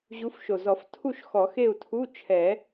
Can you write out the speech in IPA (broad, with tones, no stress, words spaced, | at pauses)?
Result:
ʑu˨˦fʃo˨˩zɔ˨˩˦ftʰu˥˨ʃ xɔ˨˩˦xe˥˨u̯tʰu˧˥˧ t͡ʃʰɛ˨˩˦